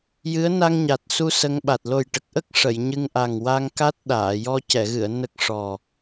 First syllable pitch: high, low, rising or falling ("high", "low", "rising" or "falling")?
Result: rising